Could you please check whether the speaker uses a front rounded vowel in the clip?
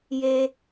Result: no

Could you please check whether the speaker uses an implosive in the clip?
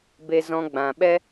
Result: yes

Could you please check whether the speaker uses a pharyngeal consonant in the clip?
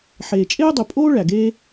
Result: yes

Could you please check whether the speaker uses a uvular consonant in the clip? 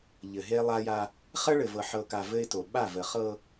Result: yes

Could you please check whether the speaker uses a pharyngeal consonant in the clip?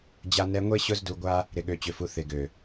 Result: no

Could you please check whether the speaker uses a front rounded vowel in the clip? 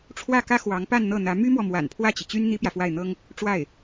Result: yes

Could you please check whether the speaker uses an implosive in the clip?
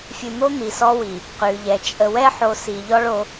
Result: no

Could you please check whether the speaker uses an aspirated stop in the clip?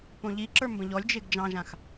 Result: no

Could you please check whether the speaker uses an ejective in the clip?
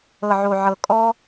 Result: yes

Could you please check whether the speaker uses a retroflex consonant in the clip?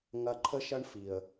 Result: yes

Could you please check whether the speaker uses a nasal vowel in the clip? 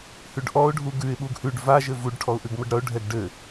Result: no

